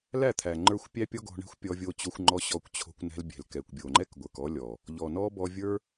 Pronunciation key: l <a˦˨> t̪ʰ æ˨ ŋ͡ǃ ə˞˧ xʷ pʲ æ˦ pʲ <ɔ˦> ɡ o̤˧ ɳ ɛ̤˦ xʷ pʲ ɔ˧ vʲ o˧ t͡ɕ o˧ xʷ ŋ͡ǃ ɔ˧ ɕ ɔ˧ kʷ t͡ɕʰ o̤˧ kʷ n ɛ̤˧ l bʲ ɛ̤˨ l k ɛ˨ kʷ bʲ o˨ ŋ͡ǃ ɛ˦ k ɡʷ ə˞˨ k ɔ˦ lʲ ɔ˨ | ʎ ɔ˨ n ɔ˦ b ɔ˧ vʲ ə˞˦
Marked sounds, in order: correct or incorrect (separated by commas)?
incorrect, correct